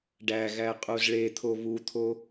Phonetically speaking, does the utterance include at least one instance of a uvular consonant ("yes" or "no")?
yes